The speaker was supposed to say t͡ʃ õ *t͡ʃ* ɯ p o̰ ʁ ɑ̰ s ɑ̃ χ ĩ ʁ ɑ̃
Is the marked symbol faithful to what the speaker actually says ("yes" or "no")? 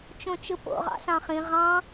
yes